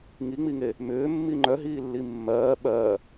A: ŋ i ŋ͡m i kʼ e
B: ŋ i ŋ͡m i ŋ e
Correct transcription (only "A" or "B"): B